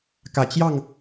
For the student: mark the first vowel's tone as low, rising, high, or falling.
low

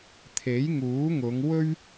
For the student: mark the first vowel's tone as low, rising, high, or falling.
rising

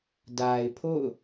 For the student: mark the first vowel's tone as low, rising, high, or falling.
low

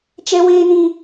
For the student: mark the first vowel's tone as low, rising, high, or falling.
high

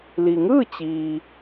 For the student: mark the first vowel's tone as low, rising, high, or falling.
low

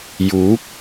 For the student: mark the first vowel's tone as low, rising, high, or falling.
rising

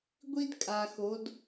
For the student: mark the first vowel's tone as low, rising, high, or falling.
high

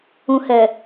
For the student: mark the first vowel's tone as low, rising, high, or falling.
low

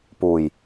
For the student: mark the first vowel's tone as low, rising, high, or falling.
low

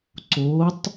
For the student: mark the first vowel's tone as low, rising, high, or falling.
rising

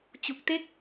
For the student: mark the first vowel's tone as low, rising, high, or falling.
low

